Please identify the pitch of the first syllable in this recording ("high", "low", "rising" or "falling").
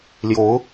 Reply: rising